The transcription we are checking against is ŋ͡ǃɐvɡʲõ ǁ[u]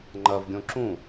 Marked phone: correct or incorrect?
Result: incorrect